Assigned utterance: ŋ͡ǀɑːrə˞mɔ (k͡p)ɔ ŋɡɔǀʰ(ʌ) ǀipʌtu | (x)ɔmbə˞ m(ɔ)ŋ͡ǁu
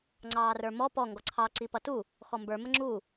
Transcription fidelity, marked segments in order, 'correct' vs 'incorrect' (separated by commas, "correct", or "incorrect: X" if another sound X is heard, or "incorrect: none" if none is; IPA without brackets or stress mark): incorrect: p, incorrect: ɑ, correct, incorrect: ə